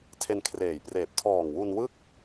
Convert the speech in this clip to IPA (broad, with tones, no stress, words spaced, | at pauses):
tʰe˧nkʰreː˨˩j preː˨˩p̚ tʰɔː˨˩ŋwu˧nwɯ˥˩k̚